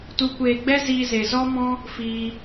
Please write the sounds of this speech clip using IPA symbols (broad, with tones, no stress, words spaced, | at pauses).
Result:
tu˧kʷeː˧ɡ͡bɛ˦ ziː˧ze˨zɔ˦mɔ̃˦ | fiː˧